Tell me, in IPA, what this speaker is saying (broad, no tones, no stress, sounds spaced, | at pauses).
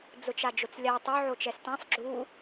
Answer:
d͡z ʊ t͡ʃ a d͡ʒ ʊ t͡s lʲ a tˤ o ʕ o t͡ʃ ɛ s t ã sˤ ɡ͡ǁ u